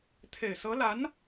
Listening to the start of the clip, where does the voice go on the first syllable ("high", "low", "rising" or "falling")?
low